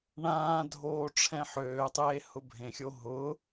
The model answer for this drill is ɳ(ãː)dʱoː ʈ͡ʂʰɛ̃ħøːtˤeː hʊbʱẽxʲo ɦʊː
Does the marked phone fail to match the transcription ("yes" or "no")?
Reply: no